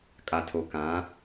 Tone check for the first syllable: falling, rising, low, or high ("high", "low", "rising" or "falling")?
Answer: low